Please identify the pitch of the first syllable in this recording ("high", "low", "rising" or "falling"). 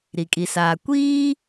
low